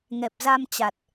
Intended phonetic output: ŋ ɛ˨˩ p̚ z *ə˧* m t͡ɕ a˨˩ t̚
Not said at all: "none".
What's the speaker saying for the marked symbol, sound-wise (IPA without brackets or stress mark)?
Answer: a˧